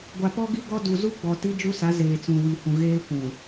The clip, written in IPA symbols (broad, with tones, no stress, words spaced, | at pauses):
ɡʷa˨pɔ˦ɡi˦ɡɔ˦ du˨zu˦ɡ͡bɔ˨ ti˦d͡ʒu˦sa˨˦ zeː˨t͡sũ˨wi˨hũ˨ ɣeː˦kʷũ˨